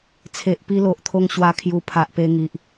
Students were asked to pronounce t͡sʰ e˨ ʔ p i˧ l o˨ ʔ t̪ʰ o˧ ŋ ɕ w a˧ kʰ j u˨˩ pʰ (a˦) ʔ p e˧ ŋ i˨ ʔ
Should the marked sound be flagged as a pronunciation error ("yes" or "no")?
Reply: yes